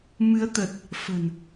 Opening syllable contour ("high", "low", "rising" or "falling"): rising